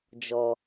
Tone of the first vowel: low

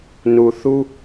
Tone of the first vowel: low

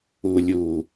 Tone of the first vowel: low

